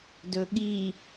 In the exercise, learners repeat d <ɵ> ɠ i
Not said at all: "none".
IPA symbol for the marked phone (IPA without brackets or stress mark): ɵ